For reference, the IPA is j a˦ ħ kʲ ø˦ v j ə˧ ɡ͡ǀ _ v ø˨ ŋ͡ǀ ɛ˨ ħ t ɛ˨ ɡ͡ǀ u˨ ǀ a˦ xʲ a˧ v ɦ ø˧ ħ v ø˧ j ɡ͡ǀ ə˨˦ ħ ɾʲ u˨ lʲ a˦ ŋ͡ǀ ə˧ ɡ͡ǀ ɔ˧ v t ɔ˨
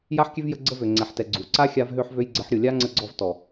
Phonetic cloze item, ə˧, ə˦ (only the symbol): ə˦